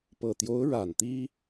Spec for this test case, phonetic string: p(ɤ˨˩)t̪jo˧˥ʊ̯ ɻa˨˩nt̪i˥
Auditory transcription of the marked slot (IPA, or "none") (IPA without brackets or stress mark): ɤ˨˩